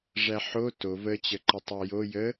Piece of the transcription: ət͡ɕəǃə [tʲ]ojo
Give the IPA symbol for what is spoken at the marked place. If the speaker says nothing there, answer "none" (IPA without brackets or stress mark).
tˤ